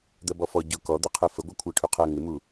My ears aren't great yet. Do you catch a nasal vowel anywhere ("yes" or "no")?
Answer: no